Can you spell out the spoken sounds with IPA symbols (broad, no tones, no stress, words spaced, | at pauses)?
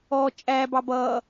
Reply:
ɔ t͡ʃʼæbɑb ʌ